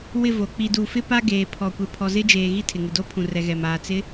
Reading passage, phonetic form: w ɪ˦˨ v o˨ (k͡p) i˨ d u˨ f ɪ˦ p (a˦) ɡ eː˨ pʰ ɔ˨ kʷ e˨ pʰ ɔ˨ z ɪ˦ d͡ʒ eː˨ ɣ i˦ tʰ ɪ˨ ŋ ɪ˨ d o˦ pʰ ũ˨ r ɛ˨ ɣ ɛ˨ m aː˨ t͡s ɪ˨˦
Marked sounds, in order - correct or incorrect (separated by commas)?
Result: correct, correct